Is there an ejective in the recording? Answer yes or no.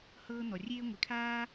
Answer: no